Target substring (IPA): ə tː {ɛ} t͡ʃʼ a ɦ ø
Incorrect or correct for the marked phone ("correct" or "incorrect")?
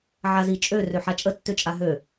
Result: incorrect